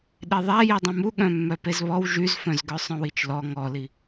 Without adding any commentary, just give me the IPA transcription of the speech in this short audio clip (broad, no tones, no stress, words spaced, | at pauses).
ɗeðˤæ jidˤœ̃mu ɠœ̃mːœpezβɔw ʒyzfœ̃zɡœ sˤœ̃wit͡ʃlɔ ŋɔli